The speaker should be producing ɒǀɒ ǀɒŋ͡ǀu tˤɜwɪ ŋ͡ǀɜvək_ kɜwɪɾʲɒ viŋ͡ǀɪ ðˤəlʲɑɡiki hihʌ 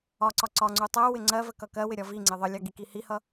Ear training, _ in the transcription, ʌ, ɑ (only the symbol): ʌ